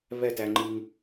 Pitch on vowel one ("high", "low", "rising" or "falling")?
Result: falling